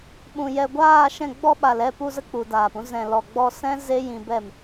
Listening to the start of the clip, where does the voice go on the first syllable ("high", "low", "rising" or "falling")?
low